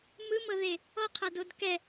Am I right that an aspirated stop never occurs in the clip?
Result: no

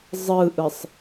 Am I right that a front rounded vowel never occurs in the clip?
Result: yes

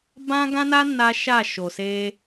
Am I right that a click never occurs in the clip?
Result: yes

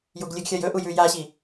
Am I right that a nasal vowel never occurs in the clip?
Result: yes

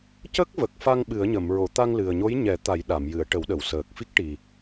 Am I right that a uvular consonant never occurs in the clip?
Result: yes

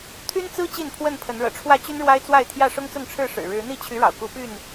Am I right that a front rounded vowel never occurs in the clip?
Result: no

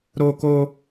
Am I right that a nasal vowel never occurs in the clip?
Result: yes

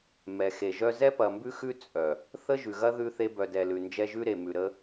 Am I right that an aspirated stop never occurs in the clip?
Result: yes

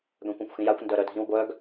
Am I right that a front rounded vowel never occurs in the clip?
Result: no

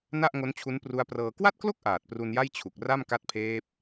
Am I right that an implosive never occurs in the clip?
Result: yes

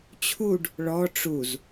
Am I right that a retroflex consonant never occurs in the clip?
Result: no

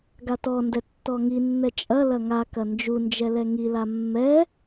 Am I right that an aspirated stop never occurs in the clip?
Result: yes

